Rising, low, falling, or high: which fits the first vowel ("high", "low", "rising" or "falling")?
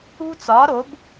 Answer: high